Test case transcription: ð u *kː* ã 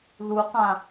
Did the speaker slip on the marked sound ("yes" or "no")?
yes